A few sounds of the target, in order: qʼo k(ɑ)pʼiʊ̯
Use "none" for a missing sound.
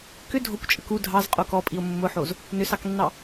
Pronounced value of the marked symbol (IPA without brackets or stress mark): ɔ